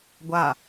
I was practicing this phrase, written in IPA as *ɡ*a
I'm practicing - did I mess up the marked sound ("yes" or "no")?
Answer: yes